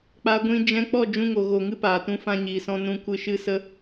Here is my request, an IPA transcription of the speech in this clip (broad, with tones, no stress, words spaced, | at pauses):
k͡pa˦ɡʷĩ˦ d͡ʒɛ̃˦ k͡pɔ˦˨d͡ʒũ˧ŋo˨ɣo˨ ŋɨ˦paː˨tũ˧ fã˧ɲiː˨sɔ̃˧ nũ˧kʷɨ˧ʃɨ˦sə˦